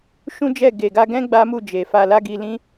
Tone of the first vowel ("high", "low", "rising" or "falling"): high